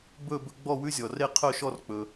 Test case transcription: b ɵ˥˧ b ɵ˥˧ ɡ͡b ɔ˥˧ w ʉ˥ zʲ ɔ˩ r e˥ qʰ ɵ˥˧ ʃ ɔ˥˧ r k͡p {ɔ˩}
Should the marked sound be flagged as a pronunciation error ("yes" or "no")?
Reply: yes